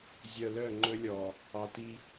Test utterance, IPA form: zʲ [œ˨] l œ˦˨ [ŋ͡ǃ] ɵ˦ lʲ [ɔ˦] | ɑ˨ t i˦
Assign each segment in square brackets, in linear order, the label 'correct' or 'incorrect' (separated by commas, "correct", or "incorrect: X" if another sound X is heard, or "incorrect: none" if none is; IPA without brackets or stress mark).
correct, correct, incorrect: ɔ˨